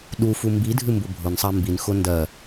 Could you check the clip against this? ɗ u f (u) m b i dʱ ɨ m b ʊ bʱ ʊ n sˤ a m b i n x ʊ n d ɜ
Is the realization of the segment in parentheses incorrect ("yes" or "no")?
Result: no